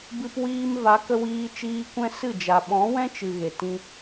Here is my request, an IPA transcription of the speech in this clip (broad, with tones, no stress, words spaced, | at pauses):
bɨ˧pwiː˧m va˨˦kə˧ wiː˧ t͡ʃiː˧ kʷɛ̃˦sɨ˦˨d͡ʒa˨ ɓɔ̃˨˦wɛ̃˦t͡ʃɨ˨ ɣe˨tĩ˧